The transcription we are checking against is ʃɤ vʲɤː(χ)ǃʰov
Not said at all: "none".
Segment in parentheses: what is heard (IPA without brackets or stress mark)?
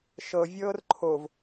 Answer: r